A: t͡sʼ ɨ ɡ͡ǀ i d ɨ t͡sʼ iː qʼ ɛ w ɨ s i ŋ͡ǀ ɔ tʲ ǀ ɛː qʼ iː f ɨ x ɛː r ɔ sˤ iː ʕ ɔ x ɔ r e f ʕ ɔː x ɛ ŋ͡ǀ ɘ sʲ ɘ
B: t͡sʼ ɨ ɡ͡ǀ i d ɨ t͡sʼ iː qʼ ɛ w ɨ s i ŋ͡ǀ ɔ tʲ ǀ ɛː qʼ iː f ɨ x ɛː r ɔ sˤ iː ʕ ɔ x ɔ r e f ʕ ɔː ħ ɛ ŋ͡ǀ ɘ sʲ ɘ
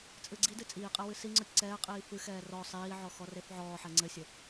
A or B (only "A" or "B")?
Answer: B